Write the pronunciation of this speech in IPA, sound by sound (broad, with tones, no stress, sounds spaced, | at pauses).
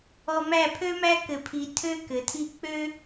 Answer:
ɔ˧ m æ˦˨ pʰ ø˦ m æ˦ k ɘ˧ pʰ i˧ tʰ ø˦ k ɘ˨˦ tʰ i˦ k͡p ø˦